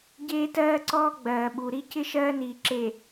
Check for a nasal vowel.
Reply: absent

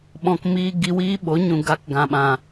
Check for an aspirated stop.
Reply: absent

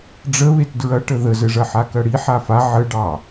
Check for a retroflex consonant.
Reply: present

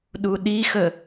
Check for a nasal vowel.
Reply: absent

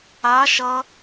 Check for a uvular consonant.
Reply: absent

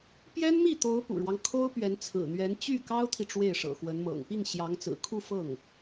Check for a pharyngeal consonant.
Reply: absent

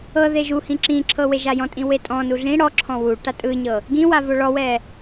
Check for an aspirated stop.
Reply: present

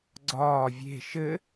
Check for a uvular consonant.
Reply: absent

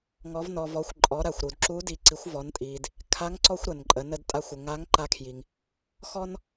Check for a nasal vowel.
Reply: absent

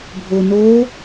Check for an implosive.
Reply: absent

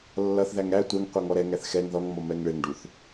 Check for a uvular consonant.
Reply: present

